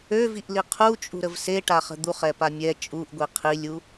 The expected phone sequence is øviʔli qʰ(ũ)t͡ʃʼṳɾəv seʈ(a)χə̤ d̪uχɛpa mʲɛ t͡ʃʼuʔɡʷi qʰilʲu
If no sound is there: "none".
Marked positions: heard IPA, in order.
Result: u, a

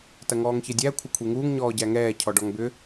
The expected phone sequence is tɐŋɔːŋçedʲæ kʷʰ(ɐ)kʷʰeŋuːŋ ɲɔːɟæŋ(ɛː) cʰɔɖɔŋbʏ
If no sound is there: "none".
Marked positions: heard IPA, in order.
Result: ɐ, ɛː

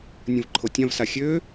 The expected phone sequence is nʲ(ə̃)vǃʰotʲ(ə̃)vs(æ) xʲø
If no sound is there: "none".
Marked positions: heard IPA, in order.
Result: ə̃, ã, a

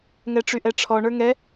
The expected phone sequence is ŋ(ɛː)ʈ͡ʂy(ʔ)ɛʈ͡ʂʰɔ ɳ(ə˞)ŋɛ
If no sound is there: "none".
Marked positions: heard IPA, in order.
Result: ɛ, ʔ, ə˞

